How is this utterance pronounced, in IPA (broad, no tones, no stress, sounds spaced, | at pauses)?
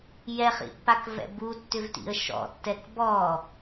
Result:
j ɛ χ ḭ pː a k v ɛ̰ b u tː ʏ v t ḭ ə̯ ʃ ɔ̰ tː ɛ k b ɔ